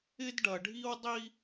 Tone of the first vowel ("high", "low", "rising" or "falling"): high